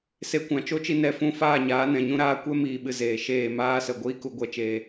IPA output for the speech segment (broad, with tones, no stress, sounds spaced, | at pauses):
s e˧ kʷ ã˨ t͡ʃ o˦ t͡ʃ i˧ n ɛ˧ f ũ˧ f aː˦˨ ɲ aː˨˦ n ɛ̃˨ ɲ ũ˦ ɾ aː˦ kʷ ɛ˦ m iː˨ ɓ ɨ˨ z eː˨ ʃ eː˦˨ m aː˦ s ə˨ ɡʷ iː˦ k u˧ ɡʷ ɛ˧ t͡ʃ eː˧